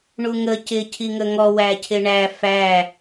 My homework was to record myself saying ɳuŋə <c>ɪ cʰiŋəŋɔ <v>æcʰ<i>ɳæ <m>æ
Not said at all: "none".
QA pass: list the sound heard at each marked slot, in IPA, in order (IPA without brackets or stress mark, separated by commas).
c, w, ɪ, f